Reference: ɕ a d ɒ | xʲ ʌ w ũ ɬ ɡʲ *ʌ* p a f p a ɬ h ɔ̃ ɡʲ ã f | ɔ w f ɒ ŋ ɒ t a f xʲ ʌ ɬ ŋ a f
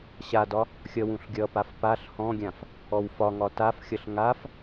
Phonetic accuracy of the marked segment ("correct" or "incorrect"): correct